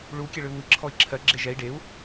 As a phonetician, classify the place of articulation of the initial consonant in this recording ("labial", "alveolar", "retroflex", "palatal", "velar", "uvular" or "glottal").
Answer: retroflex